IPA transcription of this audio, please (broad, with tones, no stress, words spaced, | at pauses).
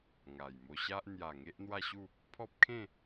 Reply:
ŋa˨˩jmo˧ɕa˦ʔ n̪ja˨˩ ŋe˦ʔn̪wa˥˧ɕu˥˧ | pʰɔ˦p̚kʰẽ˥˧